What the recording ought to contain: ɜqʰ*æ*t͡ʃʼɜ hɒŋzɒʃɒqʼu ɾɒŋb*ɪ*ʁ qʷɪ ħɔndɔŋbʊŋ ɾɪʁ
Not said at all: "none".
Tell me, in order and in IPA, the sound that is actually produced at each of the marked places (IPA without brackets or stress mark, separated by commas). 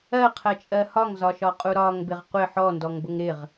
ɜ, ɪ